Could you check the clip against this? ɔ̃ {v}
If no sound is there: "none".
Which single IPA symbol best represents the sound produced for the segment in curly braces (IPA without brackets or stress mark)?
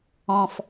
f